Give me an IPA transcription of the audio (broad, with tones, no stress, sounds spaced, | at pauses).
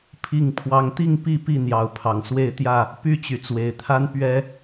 pʰ i˥˨ ŋ pʰ w ɑ˦ ŋ t̪ i˥˨ ŋ p i˥˨ p i˥˨ n̪ j ɑ˨˦ ʊ̯ pʰ ɑ˨˩ ŋ s w e˥˨ ɪ̯ t̪ j ä˥˨ | p y˥˨ t͡ɕ y˩ t͡s w e˨˩ ɪ̯ t̪ʰ a˦ n p ɥ ɛ˦